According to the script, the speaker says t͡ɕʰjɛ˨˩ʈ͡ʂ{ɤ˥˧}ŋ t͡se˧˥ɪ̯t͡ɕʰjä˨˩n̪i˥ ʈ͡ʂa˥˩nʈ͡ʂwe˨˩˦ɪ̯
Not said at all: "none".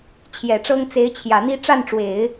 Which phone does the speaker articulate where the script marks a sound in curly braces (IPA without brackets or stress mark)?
ɤ˥